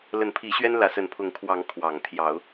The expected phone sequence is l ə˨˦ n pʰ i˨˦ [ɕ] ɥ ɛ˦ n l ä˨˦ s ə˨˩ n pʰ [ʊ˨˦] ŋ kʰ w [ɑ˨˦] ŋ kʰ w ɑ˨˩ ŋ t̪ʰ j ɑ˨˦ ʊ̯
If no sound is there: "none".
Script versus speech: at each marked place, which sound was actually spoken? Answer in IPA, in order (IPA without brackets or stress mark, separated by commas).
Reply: ɕ, ʊ˨˦, ɑ˨˦